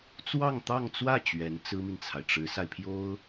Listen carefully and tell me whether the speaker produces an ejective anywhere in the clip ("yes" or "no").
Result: no